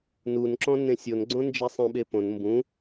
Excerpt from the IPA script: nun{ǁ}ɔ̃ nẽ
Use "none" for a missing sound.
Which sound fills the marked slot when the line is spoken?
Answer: ǁ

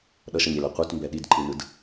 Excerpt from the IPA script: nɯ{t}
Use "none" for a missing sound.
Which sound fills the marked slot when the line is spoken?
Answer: d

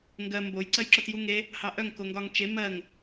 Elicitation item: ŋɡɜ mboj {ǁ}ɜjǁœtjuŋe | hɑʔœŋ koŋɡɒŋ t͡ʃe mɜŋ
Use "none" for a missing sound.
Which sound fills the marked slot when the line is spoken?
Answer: ǀ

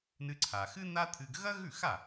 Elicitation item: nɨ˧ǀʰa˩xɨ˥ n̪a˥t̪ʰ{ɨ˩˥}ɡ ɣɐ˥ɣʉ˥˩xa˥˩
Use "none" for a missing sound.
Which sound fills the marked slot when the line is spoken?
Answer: ɨ˧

